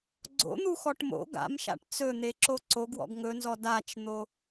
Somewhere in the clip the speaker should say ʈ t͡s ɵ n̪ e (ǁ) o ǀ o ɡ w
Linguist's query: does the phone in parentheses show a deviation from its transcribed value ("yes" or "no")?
no